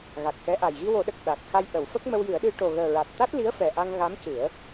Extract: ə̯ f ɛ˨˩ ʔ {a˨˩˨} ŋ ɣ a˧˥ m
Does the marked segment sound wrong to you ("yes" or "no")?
yes